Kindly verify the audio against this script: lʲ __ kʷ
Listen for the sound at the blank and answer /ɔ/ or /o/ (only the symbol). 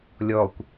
ɔ